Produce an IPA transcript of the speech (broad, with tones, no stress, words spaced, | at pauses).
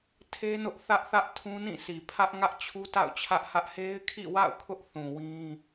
tʰe˦nʊ˦ʔθä˦ʔθä˦ʔ tʰũ˦nĩ˦˨sʰi˨ pʰä˦ʔ ŋä˦ʔt͡ɕʰu˦ta̰˦˨ʊ̯ t͡ɕʰä˦ʔhä˦ʔ he˦ɪ̯kʰḭ˦˨wa̰˦˨ʊ̯ kʰʊ˦ʔθũ˨ wĩ˦